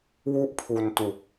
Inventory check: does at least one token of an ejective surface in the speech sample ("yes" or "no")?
no